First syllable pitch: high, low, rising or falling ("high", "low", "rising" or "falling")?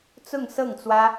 falling